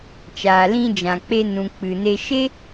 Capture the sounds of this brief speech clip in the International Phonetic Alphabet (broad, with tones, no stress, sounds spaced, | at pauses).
t͡ʃ aː˨ l ĩ˧ d͡ʒ ã˨ k͡p e˧ n ũ˨ k͡p ɨ˨ n e˧ ʃ e˦